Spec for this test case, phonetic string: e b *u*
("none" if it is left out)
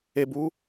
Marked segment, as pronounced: uː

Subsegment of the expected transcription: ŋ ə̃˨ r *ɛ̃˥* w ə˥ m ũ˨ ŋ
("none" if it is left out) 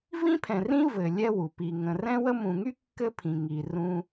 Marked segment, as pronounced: ɛ̃˥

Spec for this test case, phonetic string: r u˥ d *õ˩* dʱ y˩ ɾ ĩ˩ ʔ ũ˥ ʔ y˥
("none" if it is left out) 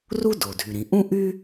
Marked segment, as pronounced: o˩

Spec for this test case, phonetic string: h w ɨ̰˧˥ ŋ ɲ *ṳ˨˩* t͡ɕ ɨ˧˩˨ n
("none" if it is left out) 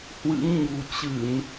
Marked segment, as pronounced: ṳ˨˩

